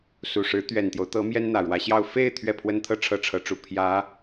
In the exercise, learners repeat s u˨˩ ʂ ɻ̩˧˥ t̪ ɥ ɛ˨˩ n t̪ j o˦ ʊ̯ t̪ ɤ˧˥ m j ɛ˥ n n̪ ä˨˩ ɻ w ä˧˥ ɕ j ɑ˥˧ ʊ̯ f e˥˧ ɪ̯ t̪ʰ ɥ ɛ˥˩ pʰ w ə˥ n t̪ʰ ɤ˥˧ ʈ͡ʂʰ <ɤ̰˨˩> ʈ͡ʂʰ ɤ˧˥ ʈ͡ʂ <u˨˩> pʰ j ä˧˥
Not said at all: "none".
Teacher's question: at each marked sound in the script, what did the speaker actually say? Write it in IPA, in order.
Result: ɤ˥˩, u˨˩

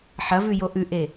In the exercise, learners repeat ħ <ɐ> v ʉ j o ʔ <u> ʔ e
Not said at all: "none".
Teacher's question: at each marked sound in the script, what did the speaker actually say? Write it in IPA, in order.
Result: ɐ, ʉ

